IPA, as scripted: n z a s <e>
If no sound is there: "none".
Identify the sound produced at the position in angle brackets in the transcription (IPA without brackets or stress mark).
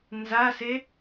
e